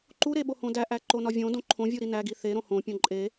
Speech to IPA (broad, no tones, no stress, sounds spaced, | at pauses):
ǃ u ɾ e ɓ o h õ d æ ʔ æ ǃ o n ɒ vʲ õ d õ ǃʰ õ vʲ u ɾ i n æ ɡ i θ e ɾ õ h õ pʲ õ ǃʼ e